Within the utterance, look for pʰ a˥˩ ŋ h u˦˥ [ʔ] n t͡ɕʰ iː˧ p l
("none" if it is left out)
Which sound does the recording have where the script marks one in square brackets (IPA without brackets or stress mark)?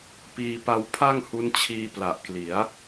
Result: none